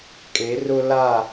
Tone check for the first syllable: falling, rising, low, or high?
rising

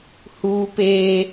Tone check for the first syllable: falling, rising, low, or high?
high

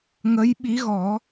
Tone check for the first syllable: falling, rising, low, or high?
rising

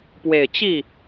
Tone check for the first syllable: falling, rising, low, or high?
low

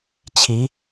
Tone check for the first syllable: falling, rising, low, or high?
rising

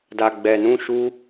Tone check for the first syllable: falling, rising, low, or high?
low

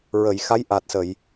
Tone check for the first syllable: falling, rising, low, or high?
low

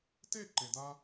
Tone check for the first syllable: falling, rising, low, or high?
falling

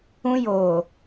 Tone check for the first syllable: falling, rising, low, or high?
high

